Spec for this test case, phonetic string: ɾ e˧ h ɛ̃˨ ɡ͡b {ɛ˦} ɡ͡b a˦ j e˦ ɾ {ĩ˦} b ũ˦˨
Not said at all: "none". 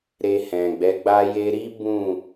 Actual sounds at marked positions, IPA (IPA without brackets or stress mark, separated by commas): ɛ˨˦, i˦